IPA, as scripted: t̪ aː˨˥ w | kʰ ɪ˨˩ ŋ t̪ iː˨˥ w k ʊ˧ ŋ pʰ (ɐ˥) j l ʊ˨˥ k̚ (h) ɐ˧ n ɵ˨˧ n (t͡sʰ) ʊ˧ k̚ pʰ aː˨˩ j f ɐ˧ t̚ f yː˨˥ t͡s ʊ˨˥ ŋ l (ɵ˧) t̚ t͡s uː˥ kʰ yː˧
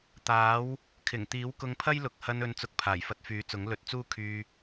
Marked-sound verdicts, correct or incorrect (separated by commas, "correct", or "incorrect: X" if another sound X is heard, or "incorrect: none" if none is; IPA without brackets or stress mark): correct, correct, incorrect: t͡s, correct